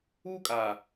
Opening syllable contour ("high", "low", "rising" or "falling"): high